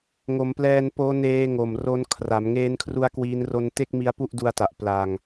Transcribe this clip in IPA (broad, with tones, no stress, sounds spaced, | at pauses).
ŋ o˩˦ m p l ɛː˧ n p oː˦˥ n eː˦˥ ŋ o˨˩ m r o˦˥ n kʰ r a˩˦ m ŋ eː˦˥ n kʰ r u˦˥ a̯ k w iː˦˥ n r o˦˥ n t e˥˩ k̚ m i˦˥ a̯ p u˥˩ ʔ d u˦˥ a̯ t a˨˩ ʔ p l a˧ ŋ